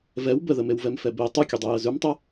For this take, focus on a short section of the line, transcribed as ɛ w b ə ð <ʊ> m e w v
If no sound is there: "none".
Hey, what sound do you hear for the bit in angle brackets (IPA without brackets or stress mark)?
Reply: ə